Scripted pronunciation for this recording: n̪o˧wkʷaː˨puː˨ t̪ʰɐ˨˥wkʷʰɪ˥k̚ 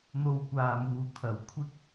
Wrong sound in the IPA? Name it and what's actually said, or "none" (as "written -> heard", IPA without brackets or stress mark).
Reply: p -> m